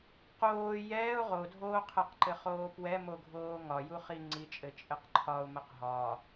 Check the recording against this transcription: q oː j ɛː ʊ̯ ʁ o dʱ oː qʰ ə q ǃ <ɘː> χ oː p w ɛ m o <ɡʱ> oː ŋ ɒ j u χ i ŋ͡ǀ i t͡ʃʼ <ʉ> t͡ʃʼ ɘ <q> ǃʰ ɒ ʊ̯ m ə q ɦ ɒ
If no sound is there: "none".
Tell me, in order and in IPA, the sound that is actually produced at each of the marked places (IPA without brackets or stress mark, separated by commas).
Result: ɘ, ɡʱ, ɘ, q